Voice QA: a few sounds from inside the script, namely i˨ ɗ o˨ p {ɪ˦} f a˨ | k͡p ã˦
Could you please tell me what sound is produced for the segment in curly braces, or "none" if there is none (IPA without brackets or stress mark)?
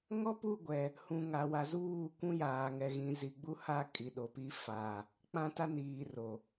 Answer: i˦